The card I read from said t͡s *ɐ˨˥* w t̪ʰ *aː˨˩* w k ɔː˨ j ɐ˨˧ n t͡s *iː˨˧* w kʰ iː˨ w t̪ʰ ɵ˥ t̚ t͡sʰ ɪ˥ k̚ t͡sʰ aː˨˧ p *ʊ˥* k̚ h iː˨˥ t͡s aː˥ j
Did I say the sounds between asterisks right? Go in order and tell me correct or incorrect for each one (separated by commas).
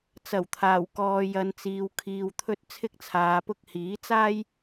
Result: incorrect, correct, incorrect, correct